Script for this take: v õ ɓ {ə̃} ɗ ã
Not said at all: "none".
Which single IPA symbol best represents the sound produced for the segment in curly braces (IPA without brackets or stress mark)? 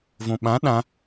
ã